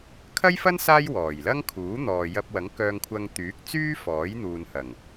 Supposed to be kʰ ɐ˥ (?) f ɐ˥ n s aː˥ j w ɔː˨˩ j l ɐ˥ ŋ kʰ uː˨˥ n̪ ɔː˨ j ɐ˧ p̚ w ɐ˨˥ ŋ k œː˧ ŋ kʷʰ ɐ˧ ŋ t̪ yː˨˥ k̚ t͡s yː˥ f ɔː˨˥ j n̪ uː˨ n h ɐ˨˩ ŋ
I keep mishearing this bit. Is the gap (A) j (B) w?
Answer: A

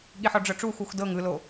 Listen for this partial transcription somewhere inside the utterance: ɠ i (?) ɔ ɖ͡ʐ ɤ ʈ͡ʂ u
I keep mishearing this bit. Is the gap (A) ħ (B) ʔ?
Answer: A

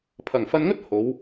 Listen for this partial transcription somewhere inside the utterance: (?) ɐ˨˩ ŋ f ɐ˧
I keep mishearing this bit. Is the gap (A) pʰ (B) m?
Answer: A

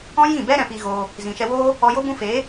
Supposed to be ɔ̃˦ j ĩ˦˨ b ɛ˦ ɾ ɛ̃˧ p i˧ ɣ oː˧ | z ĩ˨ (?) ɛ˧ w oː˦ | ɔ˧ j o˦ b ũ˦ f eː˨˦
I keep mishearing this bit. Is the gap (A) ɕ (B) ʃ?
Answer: B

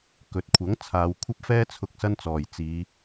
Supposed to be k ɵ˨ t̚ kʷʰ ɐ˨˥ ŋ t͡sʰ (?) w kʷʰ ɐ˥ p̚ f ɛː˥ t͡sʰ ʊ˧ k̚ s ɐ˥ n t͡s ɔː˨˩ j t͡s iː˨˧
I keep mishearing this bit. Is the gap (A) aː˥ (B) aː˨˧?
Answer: B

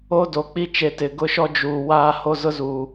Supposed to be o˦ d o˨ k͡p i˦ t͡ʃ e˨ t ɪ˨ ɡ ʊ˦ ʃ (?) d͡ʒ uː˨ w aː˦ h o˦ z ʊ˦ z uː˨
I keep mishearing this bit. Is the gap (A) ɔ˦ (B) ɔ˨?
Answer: A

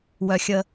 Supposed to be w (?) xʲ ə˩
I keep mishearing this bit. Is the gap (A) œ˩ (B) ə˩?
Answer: A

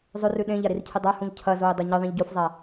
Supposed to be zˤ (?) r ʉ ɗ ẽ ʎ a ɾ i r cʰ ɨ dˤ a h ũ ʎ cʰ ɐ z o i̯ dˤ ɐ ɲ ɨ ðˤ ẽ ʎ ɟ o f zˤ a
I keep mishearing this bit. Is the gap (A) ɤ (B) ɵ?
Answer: B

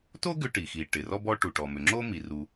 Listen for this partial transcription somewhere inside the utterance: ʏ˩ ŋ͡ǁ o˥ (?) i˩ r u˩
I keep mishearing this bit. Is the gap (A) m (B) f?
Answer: A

